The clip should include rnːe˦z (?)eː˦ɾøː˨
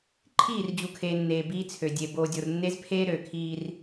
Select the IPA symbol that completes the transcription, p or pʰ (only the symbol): pʰ